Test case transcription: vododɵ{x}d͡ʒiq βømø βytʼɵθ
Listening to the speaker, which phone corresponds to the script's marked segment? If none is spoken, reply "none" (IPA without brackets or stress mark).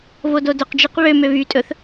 q